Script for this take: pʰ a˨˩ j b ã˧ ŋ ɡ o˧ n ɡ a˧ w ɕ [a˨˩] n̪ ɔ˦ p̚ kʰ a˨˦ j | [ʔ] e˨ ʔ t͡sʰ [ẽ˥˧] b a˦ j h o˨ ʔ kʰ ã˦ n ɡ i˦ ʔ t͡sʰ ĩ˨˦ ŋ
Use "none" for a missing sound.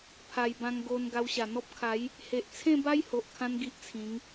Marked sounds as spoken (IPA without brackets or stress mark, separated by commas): a˨˩, h, ẽ˥˧